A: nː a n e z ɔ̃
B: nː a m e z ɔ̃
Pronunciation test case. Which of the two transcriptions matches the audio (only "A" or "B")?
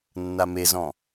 B